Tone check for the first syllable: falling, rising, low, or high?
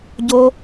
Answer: high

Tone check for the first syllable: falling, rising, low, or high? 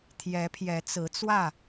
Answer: rising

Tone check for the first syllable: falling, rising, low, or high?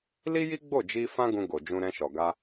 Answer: high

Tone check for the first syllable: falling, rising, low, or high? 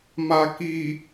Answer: low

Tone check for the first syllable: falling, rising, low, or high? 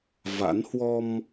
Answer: rising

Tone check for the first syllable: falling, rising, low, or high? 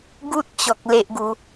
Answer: high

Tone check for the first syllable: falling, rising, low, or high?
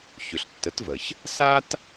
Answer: low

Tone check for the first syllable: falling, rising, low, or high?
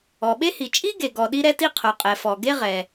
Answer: low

